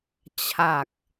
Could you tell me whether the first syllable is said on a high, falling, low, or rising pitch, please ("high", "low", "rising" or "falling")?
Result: low